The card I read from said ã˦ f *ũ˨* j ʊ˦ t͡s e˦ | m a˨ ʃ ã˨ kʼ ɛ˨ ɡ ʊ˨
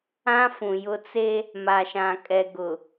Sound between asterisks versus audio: correct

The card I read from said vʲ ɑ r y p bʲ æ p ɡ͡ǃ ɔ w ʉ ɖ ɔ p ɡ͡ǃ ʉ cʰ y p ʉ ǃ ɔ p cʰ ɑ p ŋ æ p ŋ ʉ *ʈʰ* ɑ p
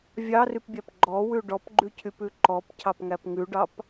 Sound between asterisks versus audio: incorrect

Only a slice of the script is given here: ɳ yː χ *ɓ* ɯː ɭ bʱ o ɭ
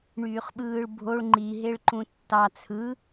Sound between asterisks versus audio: correct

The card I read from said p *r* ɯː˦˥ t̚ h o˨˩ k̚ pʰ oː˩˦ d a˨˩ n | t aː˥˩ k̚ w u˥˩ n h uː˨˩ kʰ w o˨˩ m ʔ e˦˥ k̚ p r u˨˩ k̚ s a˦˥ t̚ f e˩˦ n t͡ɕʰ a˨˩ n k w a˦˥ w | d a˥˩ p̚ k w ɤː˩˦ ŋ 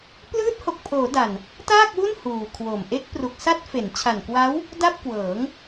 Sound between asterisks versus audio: incorrect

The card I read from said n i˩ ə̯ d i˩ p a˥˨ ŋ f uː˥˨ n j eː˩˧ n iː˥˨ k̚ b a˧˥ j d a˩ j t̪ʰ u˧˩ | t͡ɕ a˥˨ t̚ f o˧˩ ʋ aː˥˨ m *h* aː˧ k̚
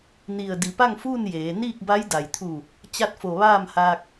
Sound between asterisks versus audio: correct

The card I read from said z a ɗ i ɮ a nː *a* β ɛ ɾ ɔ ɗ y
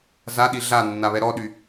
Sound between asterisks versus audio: correct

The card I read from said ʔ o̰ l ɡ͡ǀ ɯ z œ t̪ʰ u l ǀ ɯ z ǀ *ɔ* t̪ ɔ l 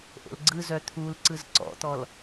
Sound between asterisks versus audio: incorrect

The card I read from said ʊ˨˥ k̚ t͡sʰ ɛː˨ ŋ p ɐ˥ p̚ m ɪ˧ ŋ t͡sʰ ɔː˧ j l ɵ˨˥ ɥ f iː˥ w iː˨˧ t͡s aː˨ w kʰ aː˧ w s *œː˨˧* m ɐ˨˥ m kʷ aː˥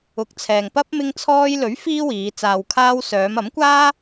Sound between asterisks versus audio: correct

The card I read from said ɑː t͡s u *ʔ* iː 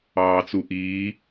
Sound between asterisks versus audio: correct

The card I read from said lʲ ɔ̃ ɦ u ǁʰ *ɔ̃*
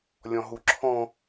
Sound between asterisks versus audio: correct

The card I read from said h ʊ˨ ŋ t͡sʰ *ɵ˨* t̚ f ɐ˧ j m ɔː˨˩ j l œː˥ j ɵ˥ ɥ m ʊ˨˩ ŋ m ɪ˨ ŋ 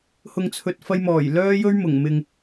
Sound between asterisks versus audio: correct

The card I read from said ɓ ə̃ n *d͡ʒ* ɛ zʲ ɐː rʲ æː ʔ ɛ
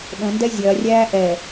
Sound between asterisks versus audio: incorrect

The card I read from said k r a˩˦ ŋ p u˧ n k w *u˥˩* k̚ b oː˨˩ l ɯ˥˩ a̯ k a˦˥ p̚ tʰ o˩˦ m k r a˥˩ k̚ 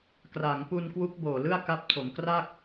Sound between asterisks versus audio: incorrect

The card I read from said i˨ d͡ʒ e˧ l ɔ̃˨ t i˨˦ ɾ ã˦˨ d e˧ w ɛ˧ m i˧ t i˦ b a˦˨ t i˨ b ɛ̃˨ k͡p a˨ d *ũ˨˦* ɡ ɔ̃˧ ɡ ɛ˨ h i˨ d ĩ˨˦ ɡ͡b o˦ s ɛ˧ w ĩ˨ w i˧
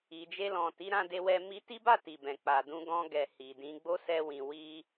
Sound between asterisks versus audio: correct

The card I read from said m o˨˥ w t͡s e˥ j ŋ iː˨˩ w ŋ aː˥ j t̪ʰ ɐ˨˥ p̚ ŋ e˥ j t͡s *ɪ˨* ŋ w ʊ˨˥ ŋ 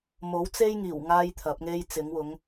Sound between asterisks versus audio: incorrect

